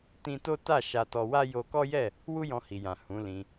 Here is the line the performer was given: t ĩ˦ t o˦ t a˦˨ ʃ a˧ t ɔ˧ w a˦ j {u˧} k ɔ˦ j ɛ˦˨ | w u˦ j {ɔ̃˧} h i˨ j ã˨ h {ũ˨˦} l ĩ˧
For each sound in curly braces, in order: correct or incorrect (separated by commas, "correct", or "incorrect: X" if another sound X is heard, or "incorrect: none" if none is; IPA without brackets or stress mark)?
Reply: incorrect: o˧, correct, correct